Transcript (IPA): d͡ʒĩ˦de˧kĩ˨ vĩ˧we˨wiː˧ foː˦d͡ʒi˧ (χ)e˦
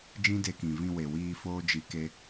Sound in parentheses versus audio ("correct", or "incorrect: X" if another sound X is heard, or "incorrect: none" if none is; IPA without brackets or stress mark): incorrect: k